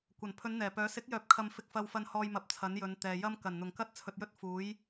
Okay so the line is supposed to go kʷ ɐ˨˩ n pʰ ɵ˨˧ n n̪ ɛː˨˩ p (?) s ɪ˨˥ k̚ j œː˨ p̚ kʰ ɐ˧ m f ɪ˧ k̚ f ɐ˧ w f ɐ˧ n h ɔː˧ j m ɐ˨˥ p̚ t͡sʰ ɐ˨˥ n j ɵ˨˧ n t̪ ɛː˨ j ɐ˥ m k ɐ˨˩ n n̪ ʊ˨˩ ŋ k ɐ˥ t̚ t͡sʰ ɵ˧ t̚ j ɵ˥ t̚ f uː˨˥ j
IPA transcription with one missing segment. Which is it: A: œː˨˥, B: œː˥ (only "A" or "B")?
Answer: A